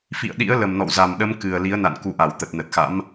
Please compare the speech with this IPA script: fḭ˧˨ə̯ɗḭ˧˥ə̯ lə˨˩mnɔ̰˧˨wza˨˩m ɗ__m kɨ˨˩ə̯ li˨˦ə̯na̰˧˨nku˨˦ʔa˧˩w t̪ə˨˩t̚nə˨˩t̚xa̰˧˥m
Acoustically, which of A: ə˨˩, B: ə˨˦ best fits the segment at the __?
B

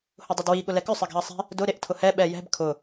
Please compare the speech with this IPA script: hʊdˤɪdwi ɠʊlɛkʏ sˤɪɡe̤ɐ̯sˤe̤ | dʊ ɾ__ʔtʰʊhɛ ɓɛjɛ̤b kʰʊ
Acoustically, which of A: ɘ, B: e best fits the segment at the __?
B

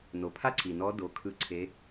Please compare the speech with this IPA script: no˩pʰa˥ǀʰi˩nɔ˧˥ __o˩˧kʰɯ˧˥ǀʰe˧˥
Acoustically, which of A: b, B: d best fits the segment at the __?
B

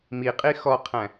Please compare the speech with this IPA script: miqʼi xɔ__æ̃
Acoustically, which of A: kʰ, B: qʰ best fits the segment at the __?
B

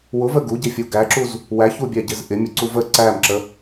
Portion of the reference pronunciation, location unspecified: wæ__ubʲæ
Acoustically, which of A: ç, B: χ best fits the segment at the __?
A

